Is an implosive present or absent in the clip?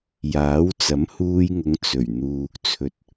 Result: absent